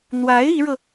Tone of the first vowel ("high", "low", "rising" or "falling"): rising